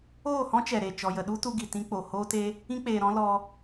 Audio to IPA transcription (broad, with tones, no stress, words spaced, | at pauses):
oː˦˨hɔ̃˦t͡ʃɛ˨ ɾe˨ t͡ʃɔ˨jə˨ɗu˦tu˧ ɡi˨tĩ˧k͡po˨ hoː˦te˦ | ĩ˦k͡peː˨ɾɔ̃˦ lɔ˧